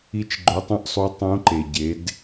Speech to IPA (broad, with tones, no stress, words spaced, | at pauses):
i˧t͡ʃ ɡ͡ǃo˧˥tˤɐ̃˥ʔ sˤu˧˥tˤũ˧˥ ǃe˩ɟe˩˧d